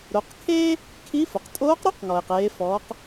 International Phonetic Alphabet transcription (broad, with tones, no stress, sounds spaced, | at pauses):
ɾ o˩˧ q kʰ eː˥ | kʰ i˧˥ f ʊ˩ q tʼ oː˧˥ q ɾ o˥ q ŋ ɔ˩ e̯ q eː˩˧ f ɔː˩˧ q